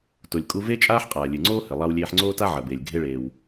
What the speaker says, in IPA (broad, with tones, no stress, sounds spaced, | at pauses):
t o˩ lʲ kʼ u˧ v e˥ t͡ʃʼ aː˥ ħ qʼ aː˩ lʲ ɨ˩ ŋ͡ǀ oː˥ h ɘ˩ lˠ a˧ w lʲ eː˧ ħ ŋ͡ǀ oː˥ t a˥ ʕ ɐ˩ b eː˩ lʲ ɡʱ e˧ ɭ eː˩ w